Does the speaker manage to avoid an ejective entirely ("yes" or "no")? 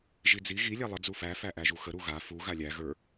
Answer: yes